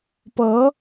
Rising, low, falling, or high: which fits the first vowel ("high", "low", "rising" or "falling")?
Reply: rising